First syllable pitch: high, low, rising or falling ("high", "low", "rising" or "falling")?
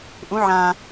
rising